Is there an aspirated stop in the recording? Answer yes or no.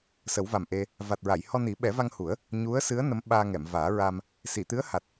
no